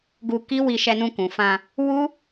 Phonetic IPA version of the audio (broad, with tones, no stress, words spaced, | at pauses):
ɡu˧ki˦wi˧ ʃɛ˧nũ˧kũ˨fã˧ | wu˦